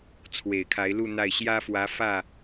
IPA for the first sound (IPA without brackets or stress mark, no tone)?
t͡sʰ